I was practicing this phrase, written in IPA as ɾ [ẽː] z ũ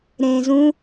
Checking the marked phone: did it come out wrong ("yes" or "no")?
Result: no